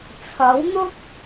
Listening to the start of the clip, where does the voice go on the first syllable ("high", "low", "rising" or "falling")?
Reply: rising